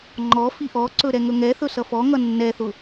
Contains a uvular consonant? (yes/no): no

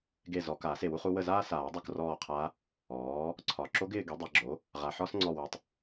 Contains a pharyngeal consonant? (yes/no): yes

